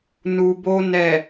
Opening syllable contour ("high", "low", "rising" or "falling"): low